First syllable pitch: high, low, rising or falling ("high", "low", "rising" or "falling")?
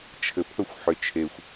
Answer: low